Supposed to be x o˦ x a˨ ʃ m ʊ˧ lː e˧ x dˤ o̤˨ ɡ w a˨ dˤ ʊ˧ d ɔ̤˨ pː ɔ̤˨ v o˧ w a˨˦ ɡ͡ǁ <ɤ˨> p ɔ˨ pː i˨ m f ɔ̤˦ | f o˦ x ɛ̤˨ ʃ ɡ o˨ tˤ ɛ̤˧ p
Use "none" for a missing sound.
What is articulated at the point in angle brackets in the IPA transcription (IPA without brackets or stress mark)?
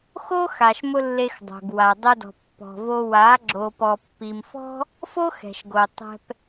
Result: o˨